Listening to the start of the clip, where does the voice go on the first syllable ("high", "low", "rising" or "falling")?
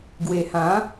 low